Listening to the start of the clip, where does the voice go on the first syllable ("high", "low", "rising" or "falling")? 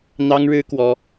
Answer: high